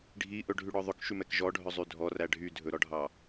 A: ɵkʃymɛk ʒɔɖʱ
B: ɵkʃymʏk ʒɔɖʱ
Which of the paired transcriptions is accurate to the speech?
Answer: A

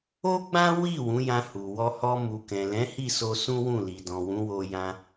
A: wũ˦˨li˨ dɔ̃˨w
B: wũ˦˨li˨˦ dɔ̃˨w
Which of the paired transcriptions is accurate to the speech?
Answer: A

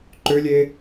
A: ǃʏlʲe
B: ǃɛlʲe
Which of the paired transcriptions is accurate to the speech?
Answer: A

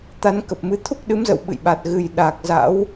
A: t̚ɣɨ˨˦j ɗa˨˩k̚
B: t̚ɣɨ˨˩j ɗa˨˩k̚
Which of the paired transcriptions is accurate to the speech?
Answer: B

